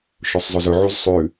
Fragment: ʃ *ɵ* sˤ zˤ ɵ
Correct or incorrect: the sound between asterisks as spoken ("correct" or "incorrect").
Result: correct